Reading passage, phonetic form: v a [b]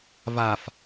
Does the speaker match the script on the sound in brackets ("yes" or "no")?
no